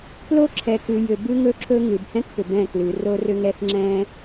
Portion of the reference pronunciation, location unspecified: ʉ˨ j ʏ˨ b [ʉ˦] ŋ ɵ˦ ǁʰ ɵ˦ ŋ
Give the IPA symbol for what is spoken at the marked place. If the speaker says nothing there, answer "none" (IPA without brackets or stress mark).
ʉ˦